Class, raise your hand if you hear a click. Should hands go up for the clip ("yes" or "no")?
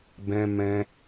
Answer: no